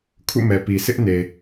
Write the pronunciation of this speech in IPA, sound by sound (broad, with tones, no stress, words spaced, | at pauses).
kʰṵ˦˨mɛ˨pi˨ sɪ˦ʔne˨